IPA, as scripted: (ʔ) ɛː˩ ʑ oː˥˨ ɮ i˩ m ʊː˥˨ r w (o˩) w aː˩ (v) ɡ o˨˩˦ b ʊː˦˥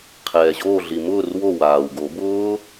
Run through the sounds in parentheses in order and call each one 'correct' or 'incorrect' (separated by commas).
incorrect, incorrect, incorrect